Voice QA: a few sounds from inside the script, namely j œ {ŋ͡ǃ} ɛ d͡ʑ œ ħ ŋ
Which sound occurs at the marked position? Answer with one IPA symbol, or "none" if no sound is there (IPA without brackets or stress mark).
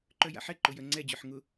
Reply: ŋ͡ǀ